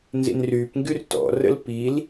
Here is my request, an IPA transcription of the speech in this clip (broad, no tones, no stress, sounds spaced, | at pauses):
n z ḭ n r yː p ŋ ɡ y r t ɔ̰ r ə̰ l p i l